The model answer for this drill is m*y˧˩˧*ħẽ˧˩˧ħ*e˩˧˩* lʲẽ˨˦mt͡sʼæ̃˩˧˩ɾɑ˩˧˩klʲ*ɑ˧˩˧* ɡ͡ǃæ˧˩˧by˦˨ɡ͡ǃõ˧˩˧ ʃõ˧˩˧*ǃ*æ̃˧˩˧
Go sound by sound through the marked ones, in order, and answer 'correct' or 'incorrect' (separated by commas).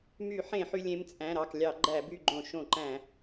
correct, incorrect, correct, correct